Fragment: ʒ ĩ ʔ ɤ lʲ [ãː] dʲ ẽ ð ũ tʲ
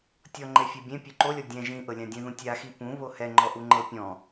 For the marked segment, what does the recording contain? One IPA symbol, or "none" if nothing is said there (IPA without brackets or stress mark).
ã